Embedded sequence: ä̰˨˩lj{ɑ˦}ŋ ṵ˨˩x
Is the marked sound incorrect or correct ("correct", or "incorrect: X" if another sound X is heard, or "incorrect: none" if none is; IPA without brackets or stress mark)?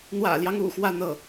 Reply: correct